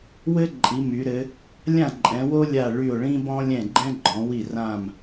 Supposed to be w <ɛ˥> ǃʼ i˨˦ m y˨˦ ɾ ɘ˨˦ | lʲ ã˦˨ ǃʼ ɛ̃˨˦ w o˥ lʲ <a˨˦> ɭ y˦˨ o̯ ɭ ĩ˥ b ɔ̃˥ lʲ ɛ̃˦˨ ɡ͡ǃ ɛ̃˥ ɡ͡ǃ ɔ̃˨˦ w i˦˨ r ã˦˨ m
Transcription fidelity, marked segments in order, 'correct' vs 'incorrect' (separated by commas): incorrect, incorrect